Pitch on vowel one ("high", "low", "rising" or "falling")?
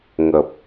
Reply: low